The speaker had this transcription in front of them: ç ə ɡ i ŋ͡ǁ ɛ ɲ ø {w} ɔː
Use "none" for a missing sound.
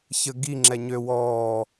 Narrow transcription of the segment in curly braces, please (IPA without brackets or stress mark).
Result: w